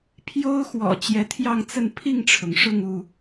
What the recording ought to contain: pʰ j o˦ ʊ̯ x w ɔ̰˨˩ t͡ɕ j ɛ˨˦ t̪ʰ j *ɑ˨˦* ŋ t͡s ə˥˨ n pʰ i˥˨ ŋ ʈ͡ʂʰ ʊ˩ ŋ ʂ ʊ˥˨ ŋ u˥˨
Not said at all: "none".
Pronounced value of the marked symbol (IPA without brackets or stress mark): ɑ˥˨